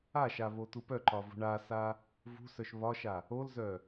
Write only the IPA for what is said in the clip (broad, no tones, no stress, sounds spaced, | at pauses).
a ʃ a β o t u p œ ǃ ɒ v ṳ ɳ a s a | v ṳ s œ ʃ β ɒ ʃ a | o l z œ